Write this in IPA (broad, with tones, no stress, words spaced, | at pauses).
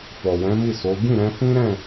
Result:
fɔ˨wɛ̃˨˦mi˦˨ so˨˦ ɡĩ˦˨ɾɛ̃˧ fĩ˦ɾɛ̃˦˨